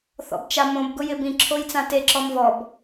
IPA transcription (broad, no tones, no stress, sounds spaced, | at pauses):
θ ɔ̰ b t͡ʃ a m õ b ɡ ʊ j ɪ b ĩ ǁʰ o j t͡s ã t e ǁ ɔ m v ɔ b